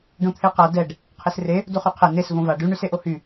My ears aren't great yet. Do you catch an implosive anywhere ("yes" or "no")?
no